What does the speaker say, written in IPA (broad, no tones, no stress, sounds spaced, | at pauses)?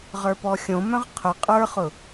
ʁ ə˞ p ɔ xʲ õ m œ̃ ʁ qʰ ʊ qʼ ə˞ χ ʊ